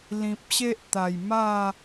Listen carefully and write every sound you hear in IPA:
l ĩ˨ p̚ ɕ e˦ ʔ t̪ a˨˩ j m a˥˧

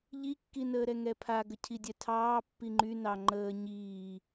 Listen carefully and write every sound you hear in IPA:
ʎ i kː i n əː ɾ ɛ ŋ ɛ pʰ a ɡ ə cʰ i dʲ ɛ tʰ ɑː pː i ŋ͡ǃ y n ɑ ŋ͡ǃ əː ɲ iː

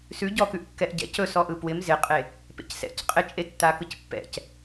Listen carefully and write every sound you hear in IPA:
s ʉ ɟ ɔ k ʉ ʔ kː ɛ ʔ ɟ ɛ̰ c ɵ s ɔ ʔ ɯ p w ɪ m z ɪ qʼ e | p ḛ c s ɛ̰ c qʼ ɪ t͡ʃʼ e tː a k ɯ c pː ɛ̰ c

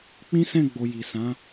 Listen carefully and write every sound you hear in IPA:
k͡p ĩ˦ s ɛ̃˦˨ ɡ͡b o˨ j i˨ s ã˨˦

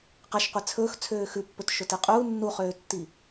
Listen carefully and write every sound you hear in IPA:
q ɛ ʃ qʷ e t͡sʰ ɵː x t͡sʰ øː x ʉ pː ɵ t ʃ ɵ t i qʼ uː nː u χ øː tː i

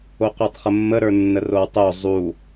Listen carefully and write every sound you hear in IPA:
o q o tˤ χ ə mː ə ɾ ə˞ nː ə r o w tˤ o zˤ u

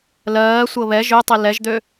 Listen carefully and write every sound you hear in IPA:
l ɜː sʷ ɤ β ɛ ʒ ø tˤ i l ɛ ʒ d̪ ø

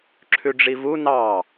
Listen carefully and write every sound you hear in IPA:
ǁʰ ʉ ɖ͡ʐ i v u n ɑ

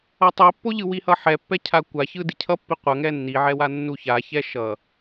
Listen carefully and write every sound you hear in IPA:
ʌ tˤ i pː o ʎ ɯ w i h ʌ ħ ɛ pː ɛ cʰ a kʷ a ç ɯ d i cʰ ʌ pː i qʷ ʌ ŋ ɛ nː i ʕ ɛ w a nː u ç a ç ɛ ʃ ʌ

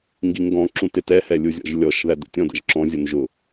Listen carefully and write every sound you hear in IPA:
ŋ ɡ i ŋ ɡ ɔ̃ ǁ ũ t ɪ t ɛ h ɛ lʲ u zʲ ɔ̰ ʒ lʲ ɔ ʃ ð æ d ə̰ tʲ ɔ̃ d ə̰ ʒ ǁ ɔ̃ zʲ u n ʒ ʊ

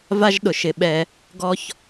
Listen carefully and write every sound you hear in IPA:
v a˥ ʒ ɗ ʊ˧ ʃ ɪ˧ ɓ ɛ˧ | ɡ ɔ˥ ç

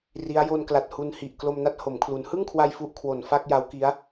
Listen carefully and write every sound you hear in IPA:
r i˦˥ a̯ j o˧ n k l a˨˩ t̚ h u˧ n h i˨˩ ʔ k l o˧ m n a˦˥ t̚ h o˩˦ m kʰ l u˩˦ n h ɯ˥˩ ŋ kʰ w a˧ j f u˥˩ ʔ kʰ w o˨˩ n f a˥˩ k̚ j a˦˥ w k i˦˥ a̯

